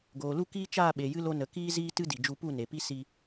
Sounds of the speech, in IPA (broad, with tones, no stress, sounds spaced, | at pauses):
ɡ oː˨ l u˦ k iː˦ t͡ʃ aː˦˨ ɓ e˨ j ɨ˧ l o˧ n ə˨ k iː˦ z iː˦ t ɨ˦ d i˨ d͡ʒ u˧ p u˦˨ n e˨ p i˦ s i˧